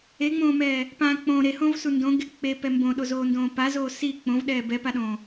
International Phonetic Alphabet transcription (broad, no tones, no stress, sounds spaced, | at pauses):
e ŋ͡m õː m ɛː | p ã k͡p õ ɾ e h õ v s u n d õ ɡ e k͡p e p ɛ m b õ ɗ o z oː n d õː p a z oː s i k͡p õ v ɗ ɛː b ɛ p a ɗ õː